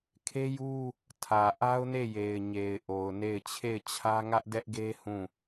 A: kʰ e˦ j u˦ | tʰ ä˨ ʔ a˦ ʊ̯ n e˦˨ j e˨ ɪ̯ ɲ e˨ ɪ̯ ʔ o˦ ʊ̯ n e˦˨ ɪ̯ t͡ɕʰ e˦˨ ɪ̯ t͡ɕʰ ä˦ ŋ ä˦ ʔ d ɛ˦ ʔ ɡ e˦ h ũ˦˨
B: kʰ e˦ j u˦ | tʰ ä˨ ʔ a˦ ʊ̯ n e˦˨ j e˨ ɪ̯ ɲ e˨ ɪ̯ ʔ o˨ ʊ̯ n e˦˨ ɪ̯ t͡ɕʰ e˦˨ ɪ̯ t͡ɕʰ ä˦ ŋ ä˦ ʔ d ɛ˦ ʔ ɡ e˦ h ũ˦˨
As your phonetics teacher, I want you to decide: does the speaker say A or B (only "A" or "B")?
B